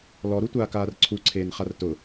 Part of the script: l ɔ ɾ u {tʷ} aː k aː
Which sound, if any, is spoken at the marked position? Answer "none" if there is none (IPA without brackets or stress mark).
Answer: tʷ